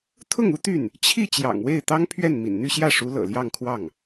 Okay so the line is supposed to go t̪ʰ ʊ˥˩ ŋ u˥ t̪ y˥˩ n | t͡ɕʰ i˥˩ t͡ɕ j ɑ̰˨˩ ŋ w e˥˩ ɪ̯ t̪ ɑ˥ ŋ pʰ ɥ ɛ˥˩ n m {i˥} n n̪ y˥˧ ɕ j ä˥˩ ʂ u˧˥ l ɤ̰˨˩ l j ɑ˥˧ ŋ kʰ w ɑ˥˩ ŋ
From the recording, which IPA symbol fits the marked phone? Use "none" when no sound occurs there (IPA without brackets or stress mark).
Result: ḭ˨˩